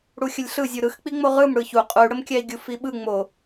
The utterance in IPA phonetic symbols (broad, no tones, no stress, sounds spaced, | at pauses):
ɽ u xʲ ə lʲ ɬ ɯ zʲ u ɾ ɯ x k͡p i ŋ͡m o ʁ ɯ m ɽ ɯ ç u qʼ u y̯ ɽ ə m kʲ æ i̯ ɡʲ u f i ɓ ɯ ŋ͡m o